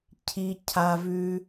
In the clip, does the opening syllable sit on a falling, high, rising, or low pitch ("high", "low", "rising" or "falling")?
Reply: low